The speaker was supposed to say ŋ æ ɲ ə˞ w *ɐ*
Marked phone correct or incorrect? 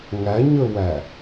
incorrect